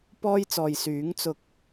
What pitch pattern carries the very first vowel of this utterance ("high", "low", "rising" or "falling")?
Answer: high